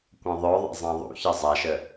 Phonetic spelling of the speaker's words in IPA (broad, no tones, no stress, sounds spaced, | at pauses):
kʷ ɐ̃ ðˤ œ ðˤ ɛ̰ zˤ ã ðˤ ṵ ç ə zˤ a ʃ ə